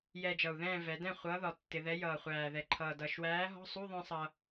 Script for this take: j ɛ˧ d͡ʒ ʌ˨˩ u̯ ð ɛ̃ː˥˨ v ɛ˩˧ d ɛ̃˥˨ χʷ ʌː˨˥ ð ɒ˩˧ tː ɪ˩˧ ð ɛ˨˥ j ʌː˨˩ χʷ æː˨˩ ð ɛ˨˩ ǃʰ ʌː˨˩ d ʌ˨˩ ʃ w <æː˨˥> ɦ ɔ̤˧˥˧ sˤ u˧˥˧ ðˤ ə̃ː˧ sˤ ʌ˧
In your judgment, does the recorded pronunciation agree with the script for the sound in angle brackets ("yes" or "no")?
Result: yes